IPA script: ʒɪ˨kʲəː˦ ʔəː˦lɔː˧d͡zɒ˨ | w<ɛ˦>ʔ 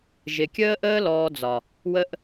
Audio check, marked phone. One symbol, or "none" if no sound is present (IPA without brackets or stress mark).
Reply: ə˦